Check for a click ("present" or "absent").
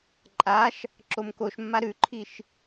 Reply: present